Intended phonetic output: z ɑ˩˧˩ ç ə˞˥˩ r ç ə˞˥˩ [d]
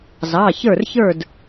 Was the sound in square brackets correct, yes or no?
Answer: yes